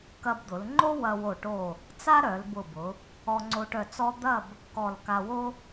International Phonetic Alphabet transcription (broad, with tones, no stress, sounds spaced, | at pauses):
k ɐ˧ b d̪ ʊ˩˧ l ŋ͡ǃ o˥ w ɐ˧ w o˧˩ ʈ o˧˩ | t͡s a˥ ɾ œ˩˧ l b ʊ˧˩ b ʊ˩˧ | ɔ˧ ŋ͡ǀ o˧ ʈ œ˧˩ t͡s ɔ˥ d̪ ɐ˥˧ b | k ɔ˧˩ l k a˧ w o˥